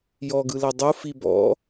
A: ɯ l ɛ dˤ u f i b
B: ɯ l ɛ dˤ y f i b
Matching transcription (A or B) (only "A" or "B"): A